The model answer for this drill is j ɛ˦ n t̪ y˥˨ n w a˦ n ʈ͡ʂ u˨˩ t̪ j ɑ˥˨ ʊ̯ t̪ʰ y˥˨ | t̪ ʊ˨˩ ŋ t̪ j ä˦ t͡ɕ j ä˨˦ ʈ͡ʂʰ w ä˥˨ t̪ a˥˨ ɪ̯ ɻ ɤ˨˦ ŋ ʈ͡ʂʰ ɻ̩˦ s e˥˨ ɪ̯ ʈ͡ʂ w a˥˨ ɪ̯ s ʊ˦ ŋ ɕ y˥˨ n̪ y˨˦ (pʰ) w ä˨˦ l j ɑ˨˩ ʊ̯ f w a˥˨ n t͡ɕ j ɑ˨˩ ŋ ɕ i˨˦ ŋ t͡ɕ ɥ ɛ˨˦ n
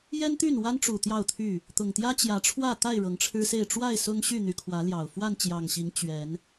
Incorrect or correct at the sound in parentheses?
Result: incorrect: kʰ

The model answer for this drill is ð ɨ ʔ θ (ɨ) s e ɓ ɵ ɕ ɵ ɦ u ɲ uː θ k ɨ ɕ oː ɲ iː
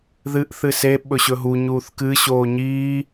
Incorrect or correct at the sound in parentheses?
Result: correct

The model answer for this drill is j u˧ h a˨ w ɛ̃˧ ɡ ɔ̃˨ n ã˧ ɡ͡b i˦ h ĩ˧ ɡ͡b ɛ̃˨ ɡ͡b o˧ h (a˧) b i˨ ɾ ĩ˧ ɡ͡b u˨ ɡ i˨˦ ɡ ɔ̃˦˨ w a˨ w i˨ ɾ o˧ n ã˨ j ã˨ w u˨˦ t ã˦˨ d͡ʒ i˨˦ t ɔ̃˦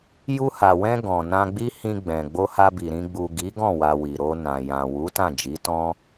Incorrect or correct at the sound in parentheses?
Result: correct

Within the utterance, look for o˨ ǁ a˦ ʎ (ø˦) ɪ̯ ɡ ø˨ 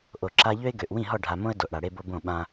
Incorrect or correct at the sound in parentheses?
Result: correct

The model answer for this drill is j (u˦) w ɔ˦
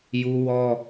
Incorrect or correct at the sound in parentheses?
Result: correct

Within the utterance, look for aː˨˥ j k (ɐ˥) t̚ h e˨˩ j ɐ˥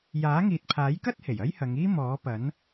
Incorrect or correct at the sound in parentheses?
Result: correct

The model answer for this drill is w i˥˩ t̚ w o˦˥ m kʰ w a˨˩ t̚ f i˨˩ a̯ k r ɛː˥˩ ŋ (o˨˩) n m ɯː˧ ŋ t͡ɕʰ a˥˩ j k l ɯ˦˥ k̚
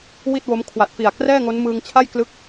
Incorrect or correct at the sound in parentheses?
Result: incorrect: o˦˥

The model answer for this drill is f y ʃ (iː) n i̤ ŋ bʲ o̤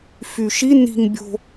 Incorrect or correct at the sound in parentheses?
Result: incorrect: i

